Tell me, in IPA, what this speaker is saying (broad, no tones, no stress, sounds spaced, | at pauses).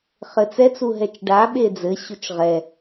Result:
χ ɘ t͡s ɛ t͡s u ɦ ɛ t͡ʃ ɖ a ɓ e d͡z ɘ ɕ u t͡ʃ ʁ ɛ